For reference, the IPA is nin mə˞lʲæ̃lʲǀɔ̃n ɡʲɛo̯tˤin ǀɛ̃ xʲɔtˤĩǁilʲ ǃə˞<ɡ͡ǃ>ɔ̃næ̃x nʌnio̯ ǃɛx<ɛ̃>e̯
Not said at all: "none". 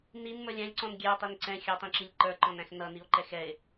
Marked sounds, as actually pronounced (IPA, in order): ǃ, ɛ

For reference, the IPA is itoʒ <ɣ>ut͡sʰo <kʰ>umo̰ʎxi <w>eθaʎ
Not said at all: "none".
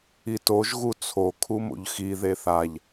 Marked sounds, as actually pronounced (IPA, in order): ɣ, kʰ, ð

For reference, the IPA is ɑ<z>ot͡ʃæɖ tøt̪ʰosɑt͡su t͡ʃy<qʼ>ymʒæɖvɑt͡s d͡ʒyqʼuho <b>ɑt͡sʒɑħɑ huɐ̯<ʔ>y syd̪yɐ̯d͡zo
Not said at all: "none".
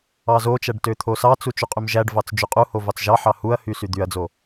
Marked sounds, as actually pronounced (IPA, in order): z, qʼ, v, h

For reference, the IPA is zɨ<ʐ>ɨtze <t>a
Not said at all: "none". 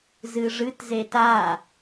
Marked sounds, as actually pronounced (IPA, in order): ʐ, t

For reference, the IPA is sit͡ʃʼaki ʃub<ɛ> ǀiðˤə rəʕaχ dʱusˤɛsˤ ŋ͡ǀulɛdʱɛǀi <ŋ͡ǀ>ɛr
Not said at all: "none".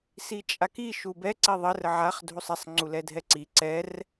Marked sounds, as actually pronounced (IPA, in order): ɛ, ǀ

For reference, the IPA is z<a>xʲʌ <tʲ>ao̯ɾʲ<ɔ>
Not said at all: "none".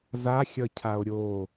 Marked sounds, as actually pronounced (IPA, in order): a, cʰ, o

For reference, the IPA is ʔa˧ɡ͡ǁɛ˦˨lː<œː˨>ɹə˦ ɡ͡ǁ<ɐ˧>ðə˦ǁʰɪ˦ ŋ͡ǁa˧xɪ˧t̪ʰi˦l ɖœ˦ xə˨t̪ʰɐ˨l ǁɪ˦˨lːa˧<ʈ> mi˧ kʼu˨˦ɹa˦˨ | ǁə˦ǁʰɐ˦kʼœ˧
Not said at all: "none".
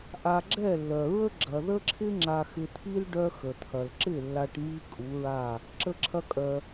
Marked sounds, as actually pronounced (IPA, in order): œ˨, ɐ˨, ʈ

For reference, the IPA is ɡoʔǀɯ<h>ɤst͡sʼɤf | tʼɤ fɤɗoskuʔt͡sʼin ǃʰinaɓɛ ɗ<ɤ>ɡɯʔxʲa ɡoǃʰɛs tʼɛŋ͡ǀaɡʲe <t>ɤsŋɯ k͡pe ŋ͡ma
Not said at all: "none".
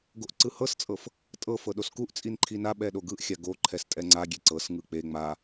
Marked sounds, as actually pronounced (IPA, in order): h, o, ǀ

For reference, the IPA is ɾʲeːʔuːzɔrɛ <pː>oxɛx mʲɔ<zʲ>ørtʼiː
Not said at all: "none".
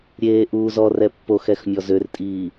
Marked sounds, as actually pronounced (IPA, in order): pː, z

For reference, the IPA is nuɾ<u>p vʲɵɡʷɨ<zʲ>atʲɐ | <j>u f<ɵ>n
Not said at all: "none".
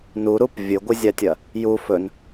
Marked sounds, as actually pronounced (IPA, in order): u, zʲ, j, ɵ

